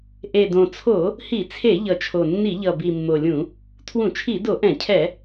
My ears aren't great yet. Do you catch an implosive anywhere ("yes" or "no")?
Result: no